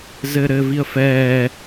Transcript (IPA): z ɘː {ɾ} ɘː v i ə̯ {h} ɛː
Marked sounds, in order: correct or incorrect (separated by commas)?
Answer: correct, incorrect